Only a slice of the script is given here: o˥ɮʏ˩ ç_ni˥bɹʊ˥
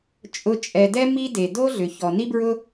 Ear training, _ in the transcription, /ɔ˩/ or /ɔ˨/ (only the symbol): ɔ˩